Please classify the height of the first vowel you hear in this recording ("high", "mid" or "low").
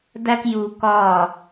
low